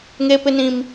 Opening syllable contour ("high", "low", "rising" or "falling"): high